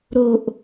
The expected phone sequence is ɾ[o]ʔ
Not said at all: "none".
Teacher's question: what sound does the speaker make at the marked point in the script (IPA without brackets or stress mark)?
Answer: o